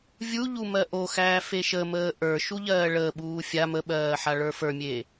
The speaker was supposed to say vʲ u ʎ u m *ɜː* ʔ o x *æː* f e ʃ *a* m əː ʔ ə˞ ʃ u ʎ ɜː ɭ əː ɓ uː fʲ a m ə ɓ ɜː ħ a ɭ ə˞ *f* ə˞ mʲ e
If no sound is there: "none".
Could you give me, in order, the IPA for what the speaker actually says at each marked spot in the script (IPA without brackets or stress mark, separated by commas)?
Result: ɜ, æː, ə, f